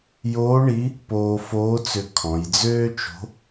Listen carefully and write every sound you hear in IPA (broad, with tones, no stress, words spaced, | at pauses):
joː˧˥ɳi˧˥ | poː˧foː˧˥t͡sʏ˧ kʰɔ̃˩˧jd͡zøː˥t͡ʃo̤˧˥